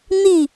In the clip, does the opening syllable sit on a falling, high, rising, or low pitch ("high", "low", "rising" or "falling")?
falling